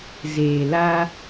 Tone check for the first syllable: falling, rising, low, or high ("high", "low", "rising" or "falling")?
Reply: low